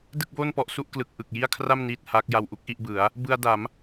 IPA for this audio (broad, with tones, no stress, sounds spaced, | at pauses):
d ɯ˥˩ k̚ b oː˥˩ n p ɔ˥˩ ʔ s u˥˩ ʔ k l ɯ˨˩ k̚ ʔ ɯ˨˩ k̚ j i˥˩ a̯ kʰ r a˥˩ m n iː˥˩ t̚ h aː˦˥ k̚ j a˧ w ʔ u˥˩ k̚ ʔ i˥˩ ʔ b ɯ˩˦ a̯ | b ɯ˧ a̯ d a˩˦ m